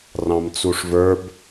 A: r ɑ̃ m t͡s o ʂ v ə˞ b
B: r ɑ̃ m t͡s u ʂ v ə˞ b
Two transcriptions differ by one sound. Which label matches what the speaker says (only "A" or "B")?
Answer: B